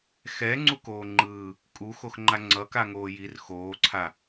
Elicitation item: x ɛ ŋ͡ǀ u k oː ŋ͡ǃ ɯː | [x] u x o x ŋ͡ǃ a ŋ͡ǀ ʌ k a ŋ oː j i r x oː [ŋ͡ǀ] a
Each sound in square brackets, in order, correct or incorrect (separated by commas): incorrect, incorrect